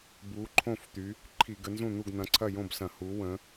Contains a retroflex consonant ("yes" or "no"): no